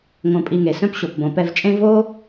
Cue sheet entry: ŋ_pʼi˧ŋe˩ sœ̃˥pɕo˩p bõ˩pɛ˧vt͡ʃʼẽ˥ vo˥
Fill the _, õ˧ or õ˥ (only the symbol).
õ˧